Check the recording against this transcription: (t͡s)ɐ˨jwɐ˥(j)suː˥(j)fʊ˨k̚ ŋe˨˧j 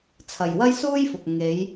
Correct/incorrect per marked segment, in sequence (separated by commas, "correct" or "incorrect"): incorrect, correct, correct